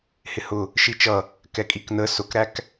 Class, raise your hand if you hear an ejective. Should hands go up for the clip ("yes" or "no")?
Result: yes